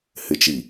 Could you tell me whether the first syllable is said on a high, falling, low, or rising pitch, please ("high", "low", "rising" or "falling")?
low